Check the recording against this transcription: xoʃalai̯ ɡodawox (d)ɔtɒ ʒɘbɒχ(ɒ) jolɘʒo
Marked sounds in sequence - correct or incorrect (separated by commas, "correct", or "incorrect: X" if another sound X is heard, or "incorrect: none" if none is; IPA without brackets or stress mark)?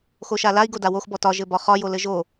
incorrect: b, correct